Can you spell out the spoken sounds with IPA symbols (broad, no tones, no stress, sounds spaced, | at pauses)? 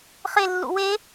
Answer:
χ e lː ṵ w e